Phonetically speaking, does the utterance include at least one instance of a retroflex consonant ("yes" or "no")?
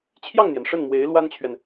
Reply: yes